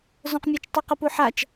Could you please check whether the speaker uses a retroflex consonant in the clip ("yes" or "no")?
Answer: no